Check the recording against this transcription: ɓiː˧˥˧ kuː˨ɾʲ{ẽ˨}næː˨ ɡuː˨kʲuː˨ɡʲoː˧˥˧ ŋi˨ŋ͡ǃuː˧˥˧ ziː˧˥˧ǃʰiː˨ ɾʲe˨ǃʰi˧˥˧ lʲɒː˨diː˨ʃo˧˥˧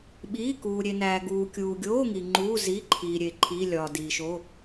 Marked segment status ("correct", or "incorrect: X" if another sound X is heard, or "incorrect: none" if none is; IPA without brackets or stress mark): incorrect: e˨